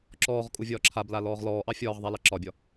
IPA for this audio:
ǁɔːʁ kʼuvʲɒːǁʰabla lɔːʁlɔːʔɑ fʲɒːʁðˤa lɑǁɒbʲɒ

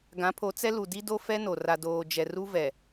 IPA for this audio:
ɡã˨˦pʰo˨˦t͡sɛ˦lu˨ di˦do˦ fɛ˦no˨ ra˨doː˨d͡ʒɛ˨ru˦ vɛ˨

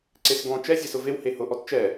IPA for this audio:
ǀesɡɔ̃ t͡ʃɛ zʲɛsʊvew hehʊ ʔɔtt͡ʃɛ

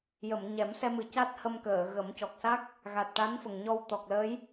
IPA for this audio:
jə˨˩˨mɲɛ˨˩˦msɛ˧mɨ˨˩ ca˦˥t̚hə˧mkəː˨˩˨ɣə˨˩˦m cɔ˨˩k̚sa˦˥k̚ | ɣa˨˩t̚ʈa˧˥nfə˨˩ŋɲɔ˧w t̪ɔ˨˩k̚ləː˧˥j

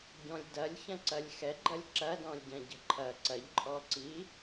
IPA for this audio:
ɟɔ̃lʲdɐlʲ çɐ̃ǀɐlʲxɛ ɡ͡ǃɐlʲǁɐdɔ̃lʲ ɟɐ̃ɟə̤ǃʰɐ ǀɐʎǃʼɔǀi

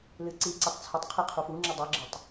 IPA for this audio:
lɨǀiǀʊtˤ t͡sʰətˤqʰi qʰufuŋ͡ǁʊ dˤɨɡ͡ǁətˤ

